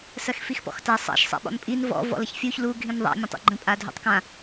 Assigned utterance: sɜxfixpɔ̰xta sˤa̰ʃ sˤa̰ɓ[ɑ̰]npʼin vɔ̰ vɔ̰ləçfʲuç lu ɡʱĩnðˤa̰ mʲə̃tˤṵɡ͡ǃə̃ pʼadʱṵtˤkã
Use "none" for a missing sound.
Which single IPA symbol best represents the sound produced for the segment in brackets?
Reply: ɔ̰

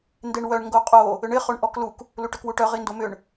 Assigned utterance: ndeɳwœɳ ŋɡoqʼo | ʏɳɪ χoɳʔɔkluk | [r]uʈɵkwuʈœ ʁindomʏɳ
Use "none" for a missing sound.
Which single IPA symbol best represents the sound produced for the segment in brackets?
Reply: l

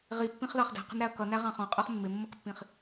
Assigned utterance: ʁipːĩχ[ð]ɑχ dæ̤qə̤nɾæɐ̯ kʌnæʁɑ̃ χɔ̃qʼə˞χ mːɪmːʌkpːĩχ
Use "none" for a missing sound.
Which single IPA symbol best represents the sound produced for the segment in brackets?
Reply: ð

